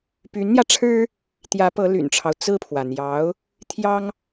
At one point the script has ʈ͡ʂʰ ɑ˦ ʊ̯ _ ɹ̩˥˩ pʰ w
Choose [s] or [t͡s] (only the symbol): t͡s